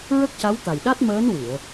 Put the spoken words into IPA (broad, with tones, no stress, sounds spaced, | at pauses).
ɹ ə˦˥ k̚ c a˧˥ w t̪ a˨˩ j ɗ a˦˥ t̚ m əː˧˥ n w ɨ˨˩˨ ə̯